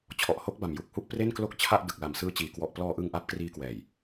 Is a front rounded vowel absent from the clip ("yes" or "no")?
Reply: yes